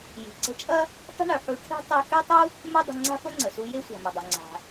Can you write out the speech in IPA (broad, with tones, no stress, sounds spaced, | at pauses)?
j i̤˩ ǀ ə̤˧ t͡ʃʼ ɐ˥ | tˤ ə̤˥ ɳ ø˩ ħ u˧ ʈʰ e̤˥ tˤ ɛ˧ x ø˥ tˤ u˥ | m ɛ˥ dˤ ə̤˧ ŋ͡ǀ a̤˥ f ə˥ ŋ͡ǀ ə˩ s u˧ j e˥ sʷ a̤˩ m ɐ˩ dˤ œ˩ ŋ͡ǀ a̤˩